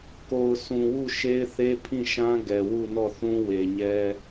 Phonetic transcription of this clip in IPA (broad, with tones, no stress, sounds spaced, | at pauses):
k o˨ ʊ̯ sʰ ũ˨ w u˦˨ ʃ e˦ ɪ̯ θ e˦ pʰ ĩ˦˨ ʃ ã˦ ɡ ɛ˨ w u˦˨ n ɔ˦˨ θ ũ˦ w e˨ ɲ ɛ˦